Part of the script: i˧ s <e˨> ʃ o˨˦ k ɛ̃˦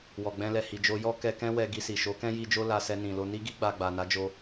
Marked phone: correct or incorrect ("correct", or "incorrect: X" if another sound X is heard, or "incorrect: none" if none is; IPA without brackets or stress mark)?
incorrect: i˨